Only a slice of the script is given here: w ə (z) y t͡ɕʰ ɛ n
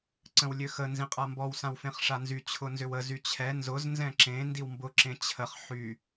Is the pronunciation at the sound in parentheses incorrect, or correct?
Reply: correct